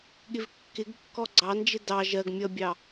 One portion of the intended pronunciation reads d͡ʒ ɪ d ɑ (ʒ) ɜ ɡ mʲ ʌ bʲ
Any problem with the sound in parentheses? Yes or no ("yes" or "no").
no